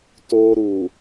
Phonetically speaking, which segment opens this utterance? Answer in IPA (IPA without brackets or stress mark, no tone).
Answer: t